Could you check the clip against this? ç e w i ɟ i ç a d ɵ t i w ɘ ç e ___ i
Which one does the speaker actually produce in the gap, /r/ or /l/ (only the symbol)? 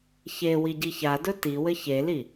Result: l